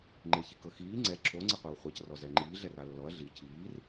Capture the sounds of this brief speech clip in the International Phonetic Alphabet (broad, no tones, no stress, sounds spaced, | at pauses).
ŋ͡ǃ e ç i k ɤ x iː ŋ͡ǀ ɛ ǁʰ o ŋ͡ǀ e qʷ e w χʷ ɛ c r ɔ z ɛ ŋ͡ǃ iː ɮ ɛ r a lː ɔ ɐ̯ ɮ i cʰ iː r